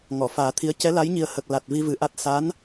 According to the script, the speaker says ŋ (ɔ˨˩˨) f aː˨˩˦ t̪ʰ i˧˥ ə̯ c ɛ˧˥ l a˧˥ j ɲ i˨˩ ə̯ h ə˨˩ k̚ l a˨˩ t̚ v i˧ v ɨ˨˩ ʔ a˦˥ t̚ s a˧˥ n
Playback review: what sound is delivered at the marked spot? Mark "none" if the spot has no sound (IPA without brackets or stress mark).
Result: ɔ˨˩˨